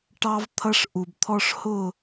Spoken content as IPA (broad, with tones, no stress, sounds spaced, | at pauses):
ʈ ɑ˦ v t̪ʰ ʌ˦ ʂ ʔ u˨ b t̪ʰ ɔ˦ ʂ h ʊ˦˨